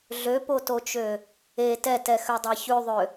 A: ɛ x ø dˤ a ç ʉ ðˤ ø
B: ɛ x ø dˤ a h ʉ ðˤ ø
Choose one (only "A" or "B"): A